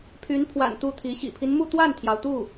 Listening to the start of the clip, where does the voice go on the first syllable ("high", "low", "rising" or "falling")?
rising